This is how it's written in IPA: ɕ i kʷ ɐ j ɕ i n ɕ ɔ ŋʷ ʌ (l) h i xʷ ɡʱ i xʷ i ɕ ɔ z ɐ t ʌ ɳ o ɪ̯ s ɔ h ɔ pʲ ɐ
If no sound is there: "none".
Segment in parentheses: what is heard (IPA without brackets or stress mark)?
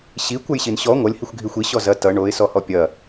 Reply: lʲ